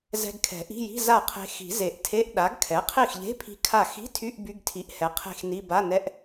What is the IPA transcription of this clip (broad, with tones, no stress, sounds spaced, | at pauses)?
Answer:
z ɛ̤˧ ɡ kʰ ɛ̤˨˩˦ ʔ i̤˧˥˧ j i̤˧˥˧ z a˥˩ qʰ e̤˧ x i̤˨˩˦ z e˨˩˦ ʔ tʰ e˧˥˧ ʔ ɗ a˩˥ ɡ kʰ ɛ˩˥ qʰ i˥˩ x ʎ e̤˧˥˧ pʰ i̤˧ kʰ a˥˩ x i̤˧˥˧ tʰ y˧˥˧ ʔ b y˧˥˧ ɡ tʰ i˩˥ ʔ h ɛ˩˥ qʰ e̤˥˩ x n i˧˥˧ b a˧˥˧ n ɛ˧˥˧ ʔ